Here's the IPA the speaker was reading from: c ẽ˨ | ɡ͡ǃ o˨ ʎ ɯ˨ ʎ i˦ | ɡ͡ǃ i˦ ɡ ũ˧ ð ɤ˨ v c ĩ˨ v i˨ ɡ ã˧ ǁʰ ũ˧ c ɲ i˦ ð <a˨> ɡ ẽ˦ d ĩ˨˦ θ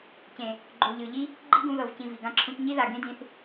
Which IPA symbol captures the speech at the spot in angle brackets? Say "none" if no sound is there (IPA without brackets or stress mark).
a˨